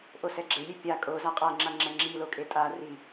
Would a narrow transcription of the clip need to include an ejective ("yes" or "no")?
yes